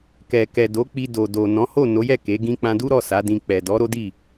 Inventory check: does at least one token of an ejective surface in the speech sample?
no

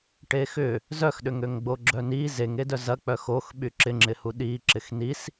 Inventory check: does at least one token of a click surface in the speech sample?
yes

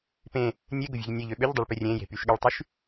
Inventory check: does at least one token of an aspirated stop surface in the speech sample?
no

